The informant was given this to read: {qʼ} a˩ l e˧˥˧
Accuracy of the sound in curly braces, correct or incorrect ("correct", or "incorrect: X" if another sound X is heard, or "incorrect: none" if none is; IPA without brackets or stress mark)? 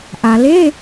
incorrect: ʔ